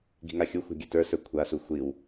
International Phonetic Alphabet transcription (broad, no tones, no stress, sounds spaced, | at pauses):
ɡ i̤ ŋ a xʲ u xʷ a̤ ɡʲ ɘ t ə˞ s ə˞ kʷʰ a s u xʷ i w